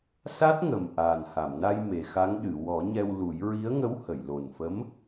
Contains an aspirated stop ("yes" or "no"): no